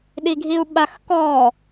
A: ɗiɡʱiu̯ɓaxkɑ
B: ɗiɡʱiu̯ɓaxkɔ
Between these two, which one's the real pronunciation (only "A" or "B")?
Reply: B